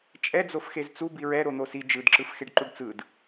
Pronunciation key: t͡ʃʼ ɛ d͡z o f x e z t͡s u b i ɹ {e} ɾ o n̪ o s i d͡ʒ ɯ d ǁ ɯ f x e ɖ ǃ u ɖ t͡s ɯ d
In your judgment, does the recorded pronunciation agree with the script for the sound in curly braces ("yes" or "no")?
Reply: no